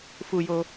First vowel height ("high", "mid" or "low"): high